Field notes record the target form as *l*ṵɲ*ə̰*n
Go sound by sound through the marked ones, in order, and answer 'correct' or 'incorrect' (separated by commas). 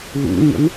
correct, correct